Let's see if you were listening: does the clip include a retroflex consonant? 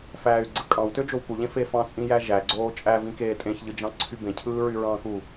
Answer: no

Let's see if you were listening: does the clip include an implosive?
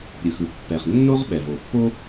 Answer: yes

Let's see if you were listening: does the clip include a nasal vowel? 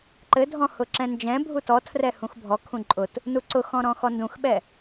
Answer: yes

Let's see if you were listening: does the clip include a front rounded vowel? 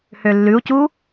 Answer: yes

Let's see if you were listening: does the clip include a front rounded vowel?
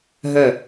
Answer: yes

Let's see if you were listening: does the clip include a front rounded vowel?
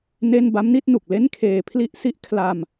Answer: no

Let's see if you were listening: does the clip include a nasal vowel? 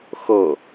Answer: no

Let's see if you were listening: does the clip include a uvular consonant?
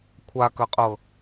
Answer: yes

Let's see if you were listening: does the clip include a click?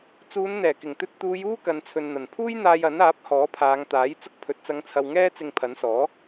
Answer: no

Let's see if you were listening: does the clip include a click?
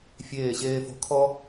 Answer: no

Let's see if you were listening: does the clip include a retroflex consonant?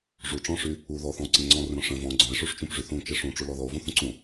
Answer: yes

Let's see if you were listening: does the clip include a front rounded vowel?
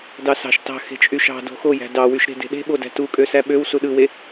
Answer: yes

